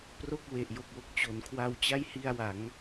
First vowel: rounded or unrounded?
rounded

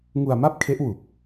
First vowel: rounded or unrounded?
rounded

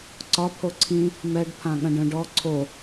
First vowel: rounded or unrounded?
rounded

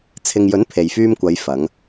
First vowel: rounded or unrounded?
unrounded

